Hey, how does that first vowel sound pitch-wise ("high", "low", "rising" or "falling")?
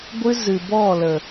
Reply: high